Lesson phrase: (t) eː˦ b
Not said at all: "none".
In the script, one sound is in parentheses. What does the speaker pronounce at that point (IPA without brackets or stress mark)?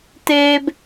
t